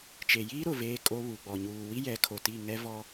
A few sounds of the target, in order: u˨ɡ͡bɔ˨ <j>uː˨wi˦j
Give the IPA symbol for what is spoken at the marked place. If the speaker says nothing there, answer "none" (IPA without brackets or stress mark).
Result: ɲ